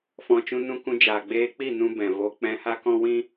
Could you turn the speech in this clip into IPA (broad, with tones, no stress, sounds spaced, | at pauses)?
f ɔ̃˨ t͡ʃ ũ˧ n ũ˧ k ũ˧ d͡ʒ aː˨ ɡ͡b eː˧ k͡p i˦˨ n ũ˧ b ɛ̃˨ v o˧ k͡p ɛ̃˧ h a˦ k ɔ̃˦ w ĩ˦